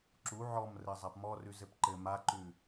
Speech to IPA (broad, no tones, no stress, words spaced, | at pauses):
ǁu ʕɔmrɘzˤap mɔrʉz ɘpǃɘ maǃʉ